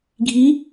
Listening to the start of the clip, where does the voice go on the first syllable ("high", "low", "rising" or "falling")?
rising